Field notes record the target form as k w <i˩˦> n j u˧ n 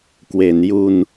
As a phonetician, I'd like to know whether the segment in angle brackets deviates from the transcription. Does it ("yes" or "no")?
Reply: yes